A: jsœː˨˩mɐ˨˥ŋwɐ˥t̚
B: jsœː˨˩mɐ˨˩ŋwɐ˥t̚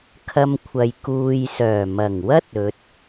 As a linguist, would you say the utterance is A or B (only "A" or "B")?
B